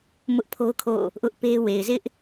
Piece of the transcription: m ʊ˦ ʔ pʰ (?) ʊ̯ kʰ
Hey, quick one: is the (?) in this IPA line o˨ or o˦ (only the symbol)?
o˦